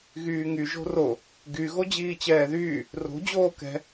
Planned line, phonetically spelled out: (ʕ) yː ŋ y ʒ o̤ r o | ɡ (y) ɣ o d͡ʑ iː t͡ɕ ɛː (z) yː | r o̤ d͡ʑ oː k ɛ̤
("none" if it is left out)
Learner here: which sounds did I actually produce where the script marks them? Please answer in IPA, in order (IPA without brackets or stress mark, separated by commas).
ɣ, y, ð